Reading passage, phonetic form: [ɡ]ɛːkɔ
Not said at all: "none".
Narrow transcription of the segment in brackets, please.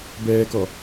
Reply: b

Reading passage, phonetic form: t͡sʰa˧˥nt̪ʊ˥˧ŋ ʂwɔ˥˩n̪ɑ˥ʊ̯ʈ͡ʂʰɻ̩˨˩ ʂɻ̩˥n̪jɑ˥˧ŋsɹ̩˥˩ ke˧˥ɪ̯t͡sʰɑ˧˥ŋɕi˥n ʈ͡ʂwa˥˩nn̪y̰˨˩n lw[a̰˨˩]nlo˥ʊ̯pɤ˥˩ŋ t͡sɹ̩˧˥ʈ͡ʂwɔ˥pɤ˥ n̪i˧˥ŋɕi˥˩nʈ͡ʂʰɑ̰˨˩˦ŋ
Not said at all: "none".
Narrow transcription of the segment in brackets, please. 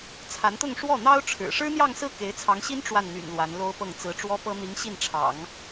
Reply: a˧˥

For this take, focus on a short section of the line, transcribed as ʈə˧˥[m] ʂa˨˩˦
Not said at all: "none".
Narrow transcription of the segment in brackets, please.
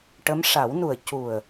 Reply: m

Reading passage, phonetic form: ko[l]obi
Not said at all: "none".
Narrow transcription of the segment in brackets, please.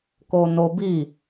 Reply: n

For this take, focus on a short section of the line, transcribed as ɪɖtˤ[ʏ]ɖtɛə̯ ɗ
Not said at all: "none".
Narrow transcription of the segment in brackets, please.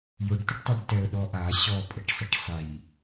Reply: ɛ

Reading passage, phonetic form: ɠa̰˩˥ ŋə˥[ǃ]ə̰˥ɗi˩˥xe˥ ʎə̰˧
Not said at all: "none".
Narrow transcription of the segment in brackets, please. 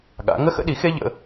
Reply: x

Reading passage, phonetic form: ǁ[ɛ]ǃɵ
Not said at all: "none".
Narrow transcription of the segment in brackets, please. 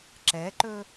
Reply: ɛ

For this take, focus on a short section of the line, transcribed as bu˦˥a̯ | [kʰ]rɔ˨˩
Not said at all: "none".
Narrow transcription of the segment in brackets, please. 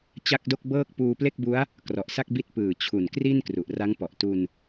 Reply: k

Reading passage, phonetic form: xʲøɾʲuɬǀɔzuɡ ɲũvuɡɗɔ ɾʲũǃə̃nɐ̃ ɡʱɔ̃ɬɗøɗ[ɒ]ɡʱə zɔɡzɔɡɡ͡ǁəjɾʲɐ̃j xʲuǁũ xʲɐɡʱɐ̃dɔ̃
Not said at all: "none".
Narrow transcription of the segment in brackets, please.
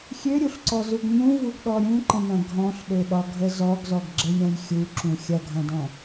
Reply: ɒ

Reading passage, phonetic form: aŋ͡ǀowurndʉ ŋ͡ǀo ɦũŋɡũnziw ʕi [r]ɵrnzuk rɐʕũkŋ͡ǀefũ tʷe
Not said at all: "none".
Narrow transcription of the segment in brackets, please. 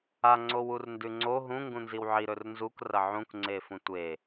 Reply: ɾ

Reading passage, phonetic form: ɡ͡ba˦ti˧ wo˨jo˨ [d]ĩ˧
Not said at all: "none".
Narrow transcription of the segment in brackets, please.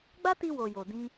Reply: d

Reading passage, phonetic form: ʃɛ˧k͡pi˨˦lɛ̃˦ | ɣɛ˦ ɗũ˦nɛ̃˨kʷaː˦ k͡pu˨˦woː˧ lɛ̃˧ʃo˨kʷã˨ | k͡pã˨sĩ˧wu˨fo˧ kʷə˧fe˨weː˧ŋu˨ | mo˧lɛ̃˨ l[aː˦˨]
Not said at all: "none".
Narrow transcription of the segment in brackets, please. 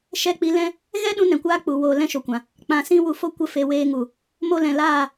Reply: aː˦˨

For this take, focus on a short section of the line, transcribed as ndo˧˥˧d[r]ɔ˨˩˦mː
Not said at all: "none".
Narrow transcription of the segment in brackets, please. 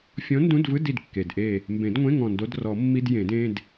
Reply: r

